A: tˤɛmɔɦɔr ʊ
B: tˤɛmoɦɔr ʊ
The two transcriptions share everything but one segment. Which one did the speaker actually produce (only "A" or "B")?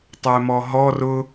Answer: A